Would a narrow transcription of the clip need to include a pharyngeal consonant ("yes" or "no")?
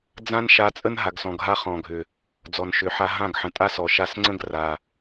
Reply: yes